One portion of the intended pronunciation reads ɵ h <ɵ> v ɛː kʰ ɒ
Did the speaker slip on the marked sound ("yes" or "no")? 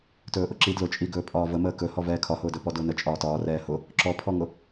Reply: yes